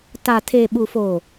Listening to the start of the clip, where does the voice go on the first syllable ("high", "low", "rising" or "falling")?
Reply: low